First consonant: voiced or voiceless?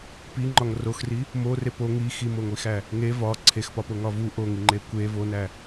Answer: voiceless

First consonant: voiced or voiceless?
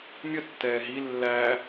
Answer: voiced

